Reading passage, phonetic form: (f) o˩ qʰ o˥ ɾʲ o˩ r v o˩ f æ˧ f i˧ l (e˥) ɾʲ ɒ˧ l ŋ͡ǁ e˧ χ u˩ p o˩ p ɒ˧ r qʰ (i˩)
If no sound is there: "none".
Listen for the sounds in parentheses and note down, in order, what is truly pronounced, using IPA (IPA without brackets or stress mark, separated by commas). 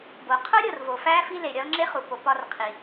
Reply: b, e˩, i˩